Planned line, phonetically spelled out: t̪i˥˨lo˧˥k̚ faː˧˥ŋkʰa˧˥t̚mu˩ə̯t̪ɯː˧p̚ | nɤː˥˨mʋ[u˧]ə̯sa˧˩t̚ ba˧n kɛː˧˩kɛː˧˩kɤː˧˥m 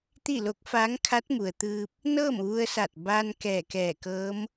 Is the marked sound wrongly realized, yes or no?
no